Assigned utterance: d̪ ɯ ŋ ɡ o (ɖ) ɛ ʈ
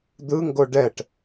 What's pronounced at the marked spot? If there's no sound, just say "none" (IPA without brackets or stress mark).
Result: ɖ